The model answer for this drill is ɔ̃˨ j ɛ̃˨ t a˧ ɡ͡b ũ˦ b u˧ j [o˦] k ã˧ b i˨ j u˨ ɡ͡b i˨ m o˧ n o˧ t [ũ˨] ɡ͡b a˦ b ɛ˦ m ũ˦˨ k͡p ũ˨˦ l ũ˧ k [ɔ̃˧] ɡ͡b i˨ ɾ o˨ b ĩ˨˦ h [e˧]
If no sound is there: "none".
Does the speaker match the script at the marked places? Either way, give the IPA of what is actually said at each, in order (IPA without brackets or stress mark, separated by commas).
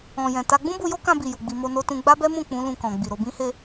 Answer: o˦, ũ˧, ɔ̃˨, e˧